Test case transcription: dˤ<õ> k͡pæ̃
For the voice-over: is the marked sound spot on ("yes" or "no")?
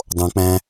yes